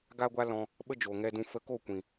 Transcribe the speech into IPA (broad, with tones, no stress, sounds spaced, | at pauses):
ɡ a˦ ɡʷ a˦ l ɔ̃˧ | ɓ ə˦ d͡ʒ o˨ ŋ ɛ˧ d ũ˧ f ə˧ k o˦˨ kʷ ĩ˨